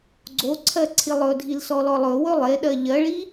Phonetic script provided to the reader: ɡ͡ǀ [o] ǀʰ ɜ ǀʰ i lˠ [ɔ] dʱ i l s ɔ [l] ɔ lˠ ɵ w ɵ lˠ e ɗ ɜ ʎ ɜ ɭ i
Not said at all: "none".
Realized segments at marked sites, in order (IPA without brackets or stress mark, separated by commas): o, ɵ, l